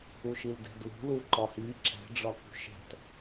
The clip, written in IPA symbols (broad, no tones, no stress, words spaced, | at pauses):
uʃildɛ̤dlṳ luǃɒhi ǁɛ̤ ɖ͡ʐɒkṳʃɛ̤t